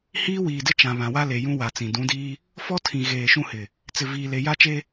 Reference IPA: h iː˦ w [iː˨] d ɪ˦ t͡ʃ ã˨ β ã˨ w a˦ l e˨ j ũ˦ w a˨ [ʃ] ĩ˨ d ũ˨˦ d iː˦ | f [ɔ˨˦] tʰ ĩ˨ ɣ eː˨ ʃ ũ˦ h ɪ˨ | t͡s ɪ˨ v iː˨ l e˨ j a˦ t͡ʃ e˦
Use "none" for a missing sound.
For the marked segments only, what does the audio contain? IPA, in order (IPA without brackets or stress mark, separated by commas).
iː˨, t͡s, ɔ˦